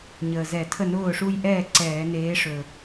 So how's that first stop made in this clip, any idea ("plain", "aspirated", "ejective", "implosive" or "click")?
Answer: aspirated